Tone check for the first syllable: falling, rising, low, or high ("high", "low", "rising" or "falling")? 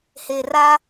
low